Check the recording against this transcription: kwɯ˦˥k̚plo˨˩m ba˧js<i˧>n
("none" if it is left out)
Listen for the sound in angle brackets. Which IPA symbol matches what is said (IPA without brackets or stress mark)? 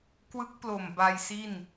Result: i˥˩